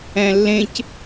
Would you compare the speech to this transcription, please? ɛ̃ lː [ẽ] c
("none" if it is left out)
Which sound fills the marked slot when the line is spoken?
ẽ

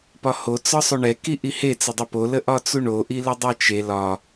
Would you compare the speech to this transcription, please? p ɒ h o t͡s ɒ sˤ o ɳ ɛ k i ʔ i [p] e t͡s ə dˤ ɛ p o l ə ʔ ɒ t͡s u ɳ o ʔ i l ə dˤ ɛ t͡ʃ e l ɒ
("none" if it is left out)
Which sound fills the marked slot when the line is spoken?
h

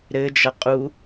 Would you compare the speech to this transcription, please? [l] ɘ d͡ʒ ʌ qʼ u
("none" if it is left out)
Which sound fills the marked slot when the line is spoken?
ɾ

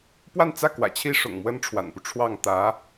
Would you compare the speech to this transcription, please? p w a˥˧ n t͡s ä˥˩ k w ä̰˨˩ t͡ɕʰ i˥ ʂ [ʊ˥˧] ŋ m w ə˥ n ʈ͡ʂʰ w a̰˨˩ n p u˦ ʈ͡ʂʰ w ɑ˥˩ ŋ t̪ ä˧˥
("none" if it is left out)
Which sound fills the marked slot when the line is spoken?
ʊ̰˨˩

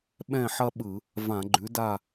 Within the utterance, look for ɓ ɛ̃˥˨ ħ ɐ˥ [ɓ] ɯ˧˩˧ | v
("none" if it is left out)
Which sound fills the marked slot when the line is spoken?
ɓ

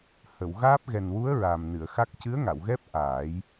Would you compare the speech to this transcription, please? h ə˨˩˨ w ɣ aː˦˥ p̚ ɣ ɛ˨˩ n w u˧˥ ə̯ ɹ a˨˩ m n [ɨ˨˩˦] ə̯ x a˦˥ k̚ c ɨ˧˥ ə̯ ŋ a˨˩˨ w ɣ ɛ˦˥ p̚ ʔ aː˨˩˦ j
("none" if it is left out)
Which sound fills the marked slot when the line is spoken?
ɨ˨˩˨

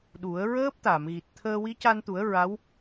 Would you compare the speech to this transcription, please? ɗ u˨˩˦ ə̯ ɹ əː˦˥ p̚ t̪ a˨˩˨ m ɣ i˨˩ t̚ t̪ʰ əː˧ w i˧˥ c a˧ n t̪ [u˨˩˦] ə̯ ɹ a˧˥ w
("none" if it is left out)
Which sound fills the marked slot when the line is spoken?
u˨˩˦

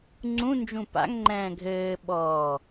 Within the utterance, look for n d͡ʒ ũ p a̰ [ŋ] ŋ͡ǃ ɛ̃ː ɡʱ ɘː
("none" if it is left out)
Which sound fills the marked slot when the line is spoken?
ŋ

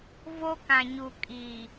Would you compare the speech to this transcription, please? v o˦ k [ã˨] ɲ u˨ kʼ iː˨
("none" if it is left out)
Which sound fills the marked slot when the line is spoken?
ã˨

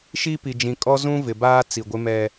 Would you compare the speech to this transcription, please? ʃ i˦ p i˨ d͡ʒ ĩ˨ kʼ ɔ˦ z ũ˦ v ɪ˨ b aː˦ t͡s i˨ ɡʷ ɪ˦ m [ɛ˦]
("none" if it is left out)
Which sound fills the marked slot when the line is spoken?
ɛ˦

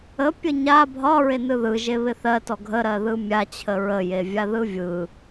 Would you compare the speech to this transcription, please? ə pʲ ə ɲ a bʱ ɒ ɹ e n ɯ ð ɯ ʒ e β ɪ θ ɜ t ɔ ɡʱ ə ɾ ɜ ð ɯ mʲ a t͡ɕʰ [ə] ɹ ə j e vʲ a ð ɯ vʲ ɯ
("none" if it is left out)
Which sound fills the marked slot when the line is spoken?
ə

